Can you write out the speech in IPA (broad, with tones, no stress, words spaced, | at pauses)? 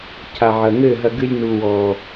cʰa˨ʕɐ˨ŋɘ˦˨ɦɐ˧ ɡɨ˧lʲnu˨ wɔ˨